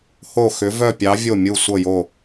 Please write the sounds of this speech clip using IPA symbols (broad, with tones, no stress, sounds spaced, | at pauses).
h o˧˩ x ʏ˩˧ v œ˧˩ pʲ ɑ˩˧ vʲ o˧˩ mʲ u˧˩ sʷ ɤ˧˩ j o˧˩